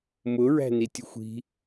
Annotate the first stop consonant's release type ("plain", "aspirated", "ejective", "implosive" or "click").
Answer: plain